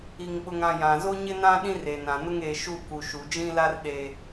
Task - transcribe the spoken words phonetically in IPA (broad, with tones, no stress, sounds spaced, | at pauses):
i˨ ŋ ɓ ʊ˨ ŋ ã˨ j ã˨ z o˦ ɲ ɪ˦ n ã˦ ɗ ĩ˦ r e˨ n ã˨ n ʊ˦ ŋ e˨ ʃ u˦˨ k u˨ ʃ u˨ d͡ʒ ĩ˦ l a˦ r ɗ e˦